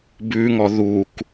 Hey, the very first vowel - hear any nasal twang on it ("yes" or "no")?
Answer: no